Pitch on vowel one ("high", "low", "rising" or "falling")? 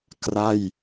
falling